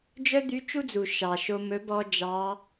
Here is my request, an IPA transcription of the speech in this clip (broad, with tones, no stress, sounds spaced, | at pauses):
d͡ʒ œ˥ d̪ y˧˥ t͡ʃ u˥ d͡z u˩ ʃ ɑ˩ ʃ o˧ m ɵ˧˥ b ɔ˥ d͡ʒ ɑ˧˥